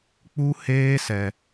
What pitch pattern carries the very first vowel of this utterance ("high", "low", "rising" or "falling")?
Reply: high